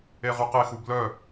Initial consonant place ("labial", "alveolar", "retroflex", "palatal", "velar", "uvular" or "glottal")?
uvular